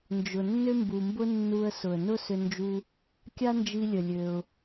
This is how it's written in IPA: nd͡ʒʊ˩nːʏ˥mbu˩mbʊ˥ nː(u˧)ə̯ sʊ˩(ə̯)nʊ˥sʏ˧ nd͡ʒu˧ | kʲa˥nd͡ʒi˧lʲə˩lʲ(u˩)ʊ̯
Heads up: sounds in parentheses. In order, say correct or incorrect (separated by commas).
correct, correct, incorrect